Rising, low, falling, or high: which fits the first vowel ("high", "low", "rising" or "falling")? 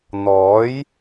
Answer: rising